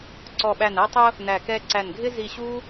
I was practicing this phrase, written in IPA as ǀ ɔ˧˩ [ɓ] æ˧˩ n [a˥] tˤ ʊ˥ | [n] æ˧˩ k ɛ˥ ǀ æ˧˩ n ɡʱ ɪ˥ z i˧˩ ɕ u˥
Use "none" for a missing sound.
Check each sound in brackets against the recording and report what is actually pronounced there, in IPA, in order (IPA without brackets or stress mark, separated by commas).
ɓ, æ˥, n